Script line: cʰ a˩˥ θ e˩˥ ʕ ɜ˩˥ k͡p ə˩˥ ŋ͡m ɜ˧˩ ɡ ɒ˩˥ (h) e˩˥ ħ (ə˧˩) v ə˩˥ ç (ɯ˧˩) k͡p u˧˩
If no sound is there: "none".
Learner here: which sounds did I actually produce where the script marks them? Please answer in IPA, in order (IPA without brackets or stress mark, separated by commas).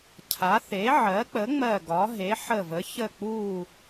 ɦ, ə˧˩, ə˧˩